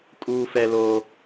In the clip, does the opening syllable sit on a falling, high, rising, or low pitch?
high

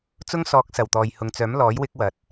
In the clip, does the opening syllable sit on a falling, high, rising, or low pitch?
high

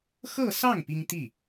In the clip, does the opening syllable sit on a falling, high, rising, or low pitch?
falling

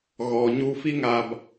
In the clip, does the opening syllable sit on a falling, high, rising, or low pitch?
low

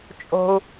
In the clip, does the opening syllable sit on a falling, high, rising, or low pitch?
high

